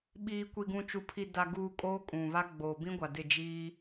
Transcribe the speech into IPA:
ɓ iː˨ kʷ i˨ ɡ ũ˨ t͡ʃ u˨ pʰ i˨ d a˨ ɡ uː˨ kʼ oː˦ kʼ ũ˨ β a˦ ɡ͡b oː˨ b ĩ˦ ɡʷ a˨ d ɪ˦˨ d͡ʒ iː˦

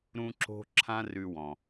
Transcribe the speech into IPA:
ɾ ũ˥ ǁ o̤˥ ǁʰ ã˥ r ʉ˧ w ɔ̃˩

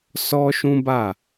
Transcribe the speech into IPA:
s ɔ˦ ʃ ũ˦ b a˦˨

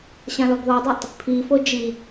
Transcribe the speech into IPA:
ɕ ã l ɔ ɡ ð ɔ dˤ i tˤ | pʰ i f o d͡ʒ i

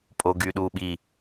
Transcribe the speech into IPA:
pʼ o ɡ y ɗ u ɓ i

